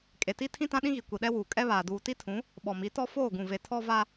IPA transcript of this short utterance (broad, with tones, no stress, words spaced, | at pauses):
kʼe˨ti˦ tʰĩ˦tã˦ɗĩ˦ɣi˨ kʷi˨ɗɛ˦wuː˨ kʼɛ˦βaː˨ duː˨ti˦tʰũ˨˦ | ɓɔ˨mi˨˦tɔ˦ foː˦˨ɡũ˨ve˨ tʰɔ˦va˦